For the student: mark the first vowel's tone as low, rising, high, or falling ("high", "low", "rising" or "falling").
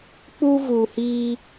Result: high